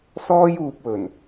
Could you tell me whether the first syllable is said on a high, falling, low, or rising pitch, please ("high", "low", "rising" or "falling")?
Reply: high